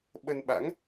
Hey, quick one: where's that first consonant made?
lips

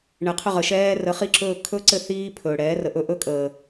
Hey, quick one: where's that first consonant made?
retroflex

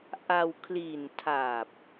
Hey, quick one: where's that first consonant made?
throat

